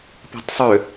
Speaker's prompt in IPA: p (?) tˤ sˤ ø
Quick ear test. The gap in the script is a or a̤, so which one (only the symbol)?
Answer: a̤